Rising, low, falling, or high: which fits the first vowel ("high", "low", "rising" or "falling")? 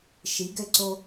rising